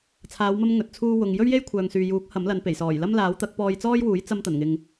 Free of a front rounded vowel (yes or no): no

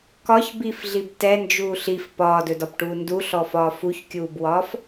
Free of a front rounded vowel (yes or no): yes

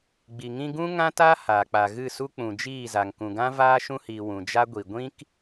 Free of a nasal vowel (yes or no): no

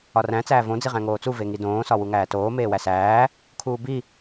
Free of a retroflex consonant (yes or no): yes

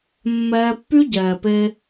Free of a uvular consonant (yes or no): yes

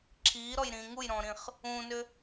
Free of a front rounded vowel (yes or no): no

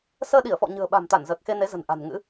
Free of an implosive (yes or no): no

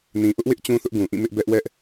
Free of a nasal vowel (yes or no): no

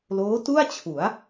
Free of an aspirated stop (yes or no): no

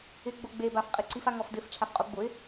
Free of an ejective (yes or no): no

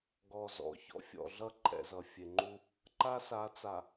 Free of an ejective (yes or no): yes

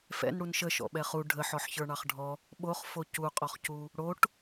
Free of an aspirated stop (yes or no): yes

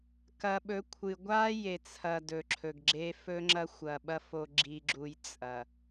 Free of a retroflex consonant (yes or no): yes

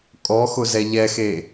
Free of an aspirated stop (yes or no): yes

